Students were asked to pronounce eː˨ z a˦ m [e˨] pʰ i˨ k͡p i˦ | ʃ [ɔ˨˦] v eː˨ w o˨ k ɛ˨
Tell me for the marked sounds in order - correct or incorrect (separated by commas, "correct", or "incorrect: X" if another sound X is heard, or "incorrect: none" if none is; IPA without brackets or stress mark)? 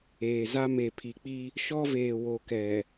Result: correct, incorrect: ɔ˦